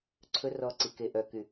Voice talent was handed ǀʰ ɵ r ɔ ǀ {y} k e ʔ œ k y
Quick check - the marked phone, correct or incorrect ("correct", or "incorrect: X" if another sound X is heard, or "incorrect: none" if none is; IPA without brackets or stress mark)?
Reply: incorrect: i